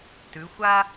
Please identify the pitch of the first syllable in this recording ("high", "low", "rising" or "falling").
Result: rising